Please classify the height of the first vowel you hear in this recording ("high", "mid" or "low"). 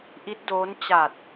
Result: high